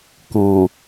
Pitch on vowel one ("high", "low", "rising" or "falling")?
low